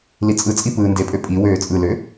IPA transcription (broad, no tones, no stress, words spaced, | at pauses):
lit͡sʼɯt͡sʼi pɯːndepʼø pʼi wøːt͡sʼɯlø